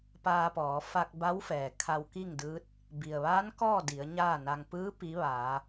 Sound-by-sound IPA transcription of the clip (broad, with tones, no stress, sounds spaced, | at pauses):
p aː˧ p ɔː˩˧ f a˧ k̚ b a˧˥ w f ɛː˩ kʰ a˧ w k i˥˨ ŋ d ɯː˧˥ t̚ | b i˩ ə̯ ʋ aː˧˥ n k ɔː˥˨ d i˩˧ ə̯ ɲ aː˥˨ n a˧ ŋ p ɯː˧˥ p i˧˥ ʋ aː˩˧